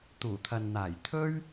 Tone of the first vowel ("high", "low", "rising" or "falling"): low